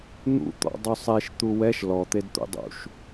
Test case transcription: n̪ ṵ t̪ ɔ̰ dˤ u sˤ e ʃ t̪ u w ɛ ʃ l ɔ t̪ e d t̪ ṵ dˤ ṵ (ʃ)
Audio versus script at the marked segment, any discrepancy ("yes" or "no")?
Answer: no